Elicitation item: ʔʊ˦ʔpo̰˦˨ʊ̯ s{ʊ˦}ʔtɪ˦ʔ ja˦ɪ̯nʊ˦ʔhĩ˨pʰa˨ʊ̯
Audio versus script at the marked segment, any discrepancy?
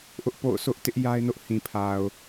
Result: no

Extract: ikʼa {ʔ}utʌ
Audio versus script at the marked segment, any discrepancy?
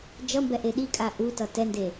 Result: no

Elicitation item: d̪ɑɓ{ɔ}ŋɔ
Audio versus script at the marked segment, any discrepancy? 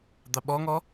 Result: no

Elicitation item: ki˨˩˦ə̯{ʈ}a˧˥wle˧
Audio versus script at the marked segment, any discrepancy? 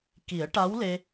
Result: no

